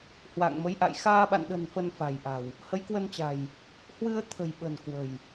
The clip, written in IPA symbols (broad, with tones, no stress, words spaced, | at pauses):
hwa̰ː˧˨ŋmə˨˦jʔa̰˧˨j xaː˧ɓa̰˧˨nɗə̤˨˩n fə˧nfa̤˨˩jʔa̤˨˩w | hə˨˦jkwə˧nt͡ɕa̤˨˩j | hwɨ˧ə̯t̪ʰə̤˨˩jɓə̤˨˩n kwə̤˨˩j